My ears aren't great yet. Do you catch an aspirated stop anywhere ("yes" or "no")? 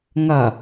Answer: no